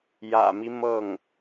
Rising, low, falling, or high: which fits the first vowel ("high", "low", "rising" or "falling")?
low